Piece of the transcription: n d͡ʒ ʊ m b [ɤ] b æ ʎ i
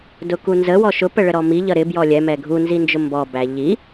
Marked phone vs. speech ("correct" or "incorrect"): incorrect